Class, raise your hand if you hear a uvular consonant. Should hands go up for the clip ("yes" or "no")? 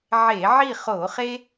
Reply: yes